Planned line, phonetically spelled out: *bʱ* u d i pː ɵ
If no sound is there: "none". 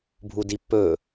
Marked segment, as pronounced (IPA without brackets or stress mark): bʱ